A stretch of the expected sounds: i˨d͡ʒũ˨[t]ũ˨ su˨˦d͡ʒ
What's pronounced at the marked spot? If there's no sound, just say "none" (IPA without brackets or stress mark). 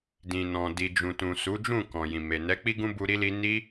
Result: t